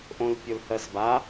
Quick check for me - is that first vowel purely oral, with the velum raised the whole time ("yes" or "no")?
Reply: no